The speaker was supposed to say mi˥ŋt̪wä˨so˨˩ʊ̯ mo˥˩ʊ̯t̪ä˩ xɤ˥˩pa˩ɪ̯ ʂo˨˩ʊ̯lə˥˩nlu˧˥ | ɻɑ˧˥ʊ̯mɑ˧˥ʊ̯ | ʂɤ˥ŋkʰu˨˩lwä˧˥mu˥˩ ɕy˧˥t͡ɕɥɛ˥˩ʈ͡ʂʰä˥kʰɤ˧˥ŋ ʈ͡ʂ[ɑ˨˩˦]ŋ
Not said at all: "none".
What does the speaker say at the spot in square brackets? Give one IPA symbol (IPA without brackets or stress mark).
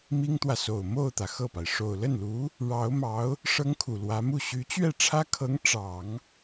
ɑ˨˩˦